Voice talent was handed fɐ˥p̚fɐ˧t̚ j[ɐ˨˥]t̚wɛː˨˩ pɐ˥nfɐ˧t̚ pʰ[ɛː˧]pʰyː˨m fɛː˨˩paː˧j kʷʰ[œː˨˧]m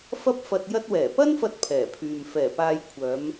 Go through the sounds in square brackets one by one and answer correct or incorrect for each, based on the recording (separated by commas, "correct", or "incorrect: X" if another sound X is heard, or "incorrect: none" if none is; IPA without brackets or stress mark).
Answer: incorrect: ɐ˧, incorrect: ɛː˨˩, correct